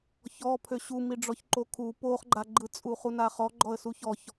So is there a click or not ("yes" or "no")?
yes